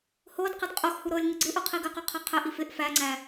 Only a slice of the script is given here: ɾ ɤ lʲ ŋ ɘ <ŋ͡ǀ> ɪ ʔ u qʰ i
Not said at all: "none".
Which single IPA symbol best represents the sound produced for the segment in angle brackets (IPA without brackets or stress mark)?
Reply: ɡ͡ǀ